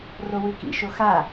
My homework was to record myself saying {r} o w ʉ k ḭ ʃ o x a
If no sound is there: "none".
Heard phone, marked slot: r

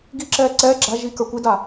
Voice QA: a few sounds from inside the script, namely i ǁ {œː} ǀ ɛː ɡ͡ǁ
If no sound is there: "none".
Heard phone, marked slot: ɛː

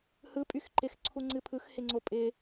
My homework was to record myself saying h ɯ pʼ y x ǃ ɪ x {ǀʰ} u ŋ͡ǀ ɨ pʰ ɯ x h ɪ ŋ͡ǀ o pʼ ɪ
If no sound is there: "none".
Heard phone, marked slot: ǀʰ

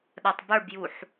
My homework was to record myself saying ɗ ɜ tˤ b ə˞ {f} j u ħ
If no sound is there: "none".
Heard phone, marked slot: b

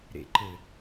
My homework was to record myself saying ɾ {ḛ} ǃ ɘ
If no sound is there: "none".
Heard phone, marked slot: ḛ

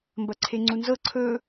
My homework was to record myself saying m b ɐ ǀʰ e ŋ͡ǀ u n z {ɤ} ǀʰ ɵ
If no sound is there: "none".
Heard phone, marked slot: ɤ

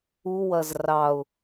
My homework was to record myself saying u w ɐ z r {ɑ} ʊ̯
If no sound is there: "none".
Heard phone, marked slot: ɑ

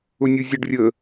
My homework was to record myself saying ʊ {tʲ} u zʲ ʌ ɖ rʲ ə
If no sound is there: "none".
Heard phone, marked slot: nʲ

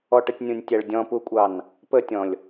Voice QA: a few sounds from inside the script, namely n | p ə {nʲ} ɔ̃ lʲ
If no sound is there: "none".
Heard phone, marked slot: tʲ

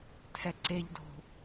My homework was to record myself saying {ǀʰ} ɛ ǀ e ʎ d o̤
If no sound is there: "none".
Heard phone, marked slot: tʰ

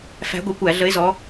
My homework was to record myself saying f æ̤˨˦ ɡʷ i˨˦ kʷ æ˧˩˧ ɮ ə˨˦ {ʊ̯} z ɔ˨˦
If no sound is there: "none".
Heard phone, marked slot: ɪ̯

